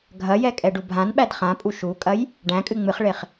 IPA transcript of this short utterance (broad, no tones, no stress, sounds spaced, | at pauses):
ɡʱ ɐ j ɛ kʼ ɛ ɖ u bʱ ã n ɓ æ d χ ã pʼ u ʃ u kʼ ɐ j | ɖ æ̃ kʼ ɨ ŋ͡m ɨ χ ɭ e χ